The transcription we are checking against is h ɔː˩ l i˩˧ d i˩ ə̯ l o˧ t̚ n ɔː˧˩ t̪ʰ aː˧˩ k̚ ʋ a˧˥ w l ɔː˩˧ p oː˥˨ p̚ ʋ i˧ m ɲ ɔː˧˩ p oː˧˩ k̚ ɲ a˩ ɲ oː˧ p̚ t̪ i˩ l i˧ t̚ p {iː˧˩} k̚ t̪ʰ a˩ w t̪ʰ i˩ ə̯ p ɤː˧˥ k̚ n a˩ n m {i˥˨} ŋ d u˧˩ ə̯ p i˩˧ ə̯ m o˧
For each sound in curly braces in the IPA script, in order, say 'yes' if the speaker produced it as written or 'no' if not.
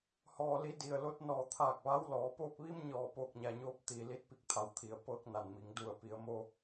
no, no

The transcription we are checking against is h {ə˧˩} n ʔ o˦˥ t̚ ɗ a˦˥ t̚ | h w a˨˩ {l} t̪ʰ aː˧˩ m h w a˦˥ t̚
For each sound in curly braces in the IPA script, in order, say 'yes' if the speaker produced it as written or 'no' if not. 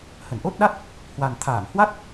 yes, no

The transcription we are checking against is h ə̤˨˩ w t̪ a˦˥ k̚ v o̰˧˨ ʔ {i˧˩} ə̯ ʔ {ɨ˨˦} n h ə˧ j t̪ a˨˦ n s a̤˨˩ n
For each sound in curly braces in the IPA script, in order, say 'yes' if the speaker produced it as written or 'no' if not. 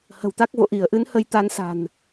yes, yes

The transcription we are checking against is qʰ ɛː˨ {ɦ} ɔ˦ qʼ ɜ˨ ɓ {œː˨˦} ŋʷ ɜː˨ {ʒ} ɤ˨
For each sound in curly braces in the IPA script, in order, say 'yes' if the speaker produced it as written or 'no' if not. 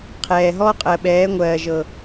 yes, no, yes

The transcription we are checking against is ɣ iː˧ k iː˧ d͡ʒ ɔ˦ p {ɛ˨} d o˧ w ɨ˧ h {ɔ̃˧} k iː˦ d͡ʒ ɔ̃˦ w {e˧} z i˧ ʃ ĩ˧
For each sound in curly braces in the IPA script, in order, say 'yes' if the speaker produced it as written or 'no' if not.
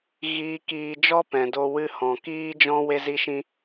no, no, yes

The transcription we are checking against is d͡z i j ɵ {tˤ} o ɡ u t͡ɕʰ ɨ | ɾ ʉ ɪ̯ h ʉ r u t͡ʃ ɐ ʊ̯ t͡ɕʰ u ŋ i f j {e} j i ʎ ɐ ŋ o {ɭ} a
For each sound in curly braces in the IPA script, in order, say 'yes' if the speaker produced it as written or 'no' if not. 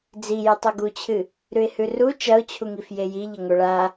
yes, yes, yes

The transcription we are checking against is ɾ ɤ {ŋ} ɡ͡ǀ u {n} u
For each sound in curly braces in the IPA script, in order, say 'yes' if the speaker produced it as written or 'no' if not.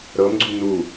no, yes

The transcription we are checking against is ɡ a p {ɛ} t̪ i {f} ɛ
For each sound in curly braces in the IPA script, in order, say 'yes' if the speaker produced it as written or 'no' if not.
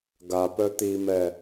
no, no

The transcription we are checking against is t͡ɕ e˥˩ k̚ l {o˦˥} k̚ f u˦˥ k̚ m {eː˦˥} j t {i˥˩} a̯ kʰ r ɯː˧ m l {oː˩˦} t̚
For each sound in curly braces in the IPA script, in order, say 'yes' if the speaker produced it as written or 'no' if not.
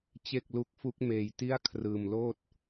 no, no, yes, no

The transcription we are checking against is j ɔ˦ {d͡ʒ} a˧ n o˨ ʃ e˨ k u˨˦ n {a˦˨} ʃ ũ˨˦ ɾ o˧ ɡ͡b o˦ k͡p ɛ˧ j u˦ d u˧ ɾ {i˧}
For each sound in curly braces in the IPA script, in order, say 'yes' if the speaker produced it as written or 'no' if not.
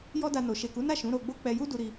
no, yes, yes

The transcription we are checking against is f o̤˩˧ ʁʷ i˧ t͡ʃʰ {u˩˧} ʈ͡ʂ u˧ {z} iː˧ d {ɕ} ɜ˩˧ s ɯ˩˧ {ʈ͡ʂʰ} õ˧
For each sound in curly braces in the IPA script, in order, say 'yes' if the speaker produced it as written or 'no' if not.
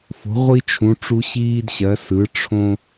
no, no, yes, yes

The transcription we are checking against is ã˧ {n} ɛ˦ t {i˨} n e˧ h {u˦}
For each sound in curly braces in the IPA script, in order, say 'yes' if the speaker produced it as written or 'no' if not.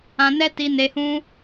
yes, no, no

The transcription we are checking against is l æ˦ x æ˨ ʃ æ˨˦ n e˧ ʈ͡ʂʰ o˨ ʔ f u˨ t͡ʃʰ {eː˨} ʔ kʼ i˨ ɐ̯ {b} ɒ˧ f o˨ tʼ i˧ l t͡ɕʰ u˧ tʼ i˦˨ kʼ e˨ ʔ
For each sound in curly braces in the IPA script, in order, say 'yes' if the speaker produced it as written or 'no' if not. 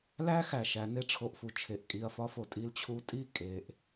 no, no

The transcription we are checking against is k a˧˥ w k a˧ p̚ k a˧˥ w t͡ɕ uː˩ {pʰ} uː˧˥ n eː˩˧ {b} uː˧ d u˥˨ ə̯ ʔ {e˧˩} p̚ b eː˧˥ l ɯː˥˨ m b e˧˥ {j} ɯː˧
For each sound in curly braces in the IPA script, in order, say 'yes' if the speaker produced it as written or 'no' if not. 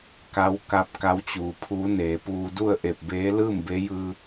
yes, no, yes, yes

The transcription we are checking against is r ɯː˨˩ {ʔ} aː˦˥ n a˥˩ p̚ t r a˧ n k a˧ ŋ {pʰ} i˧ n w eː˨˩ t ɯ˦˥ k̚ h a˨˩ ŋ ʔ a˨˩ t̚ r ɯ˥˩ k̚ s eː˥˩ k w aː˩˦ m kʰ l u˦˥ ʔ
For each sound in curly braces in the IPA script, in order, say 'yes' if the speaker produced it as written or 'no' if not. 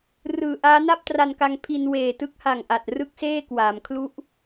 yes, yes

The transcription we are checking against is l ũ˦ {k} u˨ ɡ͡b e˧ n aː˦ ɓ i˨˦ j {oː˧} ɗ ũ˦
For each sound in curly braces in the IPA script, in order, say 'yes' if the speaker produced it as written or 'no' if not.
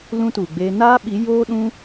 no, no

